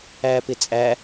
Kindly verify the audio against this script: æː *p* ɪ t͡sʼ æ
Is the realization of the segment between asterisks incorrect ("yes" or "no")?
no